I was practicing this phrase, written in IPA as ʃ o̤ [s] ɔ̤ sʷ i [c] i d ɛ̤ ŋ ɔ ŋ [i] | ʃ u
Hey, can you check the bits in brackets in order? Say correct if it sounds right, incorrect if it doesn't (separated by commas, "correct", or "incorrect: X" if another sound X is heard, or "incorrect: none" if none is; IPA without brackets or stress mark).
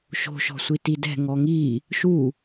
incorrect: ʃ, incorrect: t, correct